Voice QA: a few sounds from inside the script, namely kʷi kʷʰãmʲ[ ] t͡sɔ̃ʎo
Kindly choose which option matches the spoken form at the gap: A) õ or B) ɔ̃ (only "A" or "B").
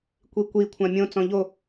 A